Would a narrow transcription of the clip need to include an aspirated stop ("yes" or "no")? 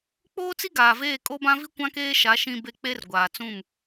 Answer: no